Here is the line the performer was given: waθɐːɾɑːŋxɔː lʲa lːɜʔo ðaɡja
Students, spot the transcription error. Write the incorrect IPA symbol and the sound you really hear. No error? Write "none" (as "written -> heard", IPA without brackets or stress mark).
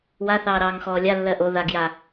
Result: ɐː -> ɑː